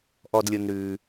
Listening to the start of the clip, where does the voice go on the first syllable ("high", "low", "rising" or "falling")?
low